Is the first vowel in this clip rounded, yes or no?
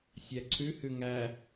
no